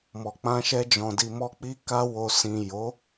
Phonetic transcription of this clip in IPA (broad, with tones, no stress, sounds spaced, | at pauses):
m ɔ˨ k͡p ã˧ ʃ ɛ˧ d͡ʒ ɔ̃˨ d i˨ m ɔ˧ k͡p i˧ k a˧ w o˨ s ĩ˨ j o˨˦